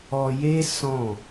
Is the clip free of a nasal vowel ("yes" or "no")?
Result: no